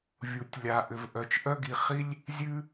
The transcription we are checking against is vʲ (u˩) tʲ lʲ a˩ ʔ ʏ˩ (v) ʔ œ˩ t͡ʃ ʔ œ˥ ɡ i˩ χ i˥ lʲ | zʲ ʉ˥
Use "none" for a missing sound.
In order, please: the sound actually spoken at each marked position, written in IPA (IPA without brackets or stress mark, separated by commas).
u˩, v